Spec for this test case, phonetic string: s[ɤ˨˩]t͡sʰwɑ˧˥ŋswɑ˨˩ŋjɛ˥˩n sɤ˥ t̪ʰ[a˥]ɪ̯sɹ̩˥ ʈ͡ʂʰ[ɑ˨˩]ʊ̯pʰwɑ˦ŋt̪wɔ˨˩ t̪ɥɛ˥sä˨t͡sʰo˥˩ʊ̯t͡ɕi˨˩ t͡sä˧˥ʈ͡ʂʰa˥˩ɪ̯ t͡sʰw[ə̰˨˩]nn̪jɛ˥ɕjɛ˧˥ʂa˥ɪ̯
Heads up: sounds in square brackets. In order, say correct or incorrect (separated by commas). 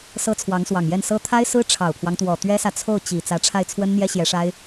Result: incorrect, correct, correct, incorrect